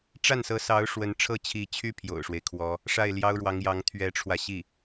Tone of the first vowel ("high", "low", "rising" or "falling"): falling